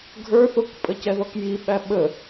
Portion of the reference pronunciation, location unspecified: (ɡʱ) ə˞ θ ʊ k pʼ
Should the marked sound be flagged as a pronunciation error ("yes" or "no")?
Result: no